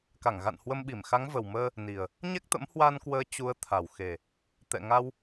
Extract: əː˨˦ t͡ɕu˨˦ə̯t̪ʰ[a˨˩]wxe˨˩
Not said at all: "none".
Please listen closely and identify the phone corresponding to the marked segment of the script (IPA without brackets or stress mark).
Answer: a˨˩